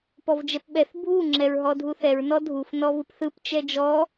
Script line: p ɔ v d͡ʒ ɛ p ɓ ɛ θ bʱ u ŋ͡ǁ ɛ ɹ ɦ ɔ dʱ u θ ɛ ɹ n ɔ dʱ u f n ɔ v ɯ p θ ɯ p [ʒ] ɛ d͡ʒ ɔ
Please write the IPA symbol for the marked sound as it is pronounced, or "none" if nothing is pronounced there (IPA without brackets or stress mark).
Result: t͡ʃ